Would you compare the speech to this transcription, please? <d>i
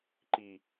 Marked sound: incorrect: ǃ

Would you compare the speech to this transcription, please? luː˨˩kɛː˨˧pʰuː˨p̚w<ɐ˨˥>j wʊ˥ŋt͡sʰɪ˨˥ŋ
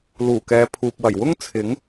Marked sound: incorrect: ɐ˨˩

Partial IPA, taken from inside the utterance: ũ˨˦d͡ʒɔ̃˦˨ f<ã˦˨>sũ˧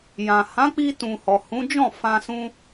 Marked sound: incorrect: ã˧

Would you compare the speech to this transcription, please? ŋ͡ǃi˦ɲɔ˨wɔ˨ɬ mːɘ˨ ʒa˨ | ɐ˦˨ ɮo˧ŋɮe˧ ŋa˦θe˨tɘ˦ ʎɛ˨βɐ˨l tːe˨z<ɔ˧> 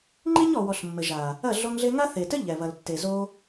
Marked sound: incorrect: o˧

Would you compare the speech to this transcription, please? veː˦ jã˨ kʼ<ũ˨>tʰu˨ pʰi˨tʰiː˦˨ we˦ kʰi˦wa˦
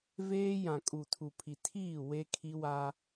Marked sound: incorrect: u˨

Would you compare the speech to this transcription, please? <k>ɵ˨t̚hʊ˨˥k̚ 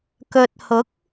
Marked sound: correct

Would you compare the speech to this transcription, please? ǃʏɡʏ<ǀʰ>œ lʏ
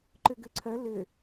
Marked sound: correct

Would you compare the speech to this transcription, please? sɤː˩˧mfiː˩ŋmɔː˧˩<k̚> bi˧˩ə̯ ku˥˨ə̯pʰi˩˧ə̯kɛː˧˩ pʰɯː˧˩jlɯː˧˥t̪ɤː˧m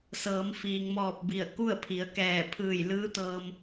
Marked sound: incorrect: p̚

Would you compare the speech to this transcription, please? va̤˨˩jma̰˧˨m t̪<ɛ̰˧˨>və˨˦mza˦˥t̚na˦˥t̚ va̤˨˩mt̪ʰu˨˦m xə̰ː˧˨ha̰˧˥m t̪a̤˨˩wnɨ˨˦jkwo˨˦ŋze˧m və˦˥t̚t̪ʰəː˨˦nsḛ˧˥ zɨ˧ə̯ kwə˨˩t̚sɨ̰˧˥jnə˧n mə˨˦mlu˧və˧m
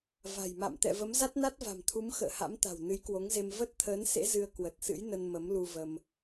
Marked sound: correct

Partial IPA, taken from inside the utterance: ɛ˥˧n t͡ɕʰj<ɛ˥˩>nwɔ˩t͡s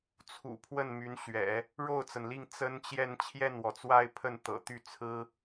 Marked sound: correct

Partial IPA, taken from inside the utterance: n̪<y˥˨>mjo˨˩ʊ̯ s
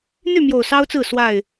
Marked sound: correct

